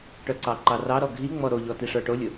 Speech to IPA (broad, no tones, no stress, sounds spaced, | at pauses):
ʈ œ ǀ ɑ ǃ ɑ r ɑ ɾ ɔ ɡʱ i ŋ͡m ɔ ɾ o ʎ ɔ t i ʂ ə˞ ʈ o lʲ ʊ